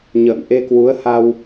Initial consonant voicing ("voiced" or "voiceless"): voiced